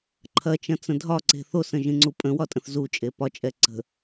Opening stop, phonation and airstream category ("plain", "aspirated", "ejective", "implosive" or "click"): click